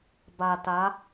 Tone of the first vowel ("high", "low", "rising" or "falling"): low